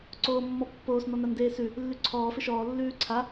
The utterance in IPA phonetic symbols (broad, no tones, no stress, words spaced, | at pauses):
ǀoːmːɔpːoːs n̪ɔnandeːsʉ | lːʉǀʰɔː fɪʃɔː lːʉːǀʰa